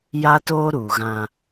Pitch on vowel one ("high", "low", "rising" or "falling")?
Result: high